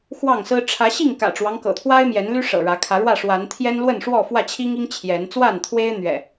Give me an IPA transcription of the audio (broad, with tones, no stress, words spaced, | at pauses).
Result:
xwɑ˥˨ŋsɹ̩˦ ʈ͡ʂʰä˨˦ɕi˥˨ŋ kä̰˨˩ʈ͡ʂwɑ˦ŋ kɤ̰˨˩t̪ʰwa˦ɪ̯ mjɛ˨˦nly˦ ʂɤ̰˨˩ɻä˨˦ kʰä˨˦ɻwä˥˨ʂwa˨˦n t̪ʰjɛ˦nlwə˥˨nʂwɔ˥˨ fwä˥˨t͡ɕʰi˦ŋi˦ŋ t͡ɕʰjɛ˨˦n t͡swa˥˨nt̪ʰwe˦ɪ̯ n̪ɥɛ̰˨˩